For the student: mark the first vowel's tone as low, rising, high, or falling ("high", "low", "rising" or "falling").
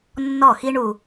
falling